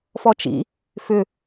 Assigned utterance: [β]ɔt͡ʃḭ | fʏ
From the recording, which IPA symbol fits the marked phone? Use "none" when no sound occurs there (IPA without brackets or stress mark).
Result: f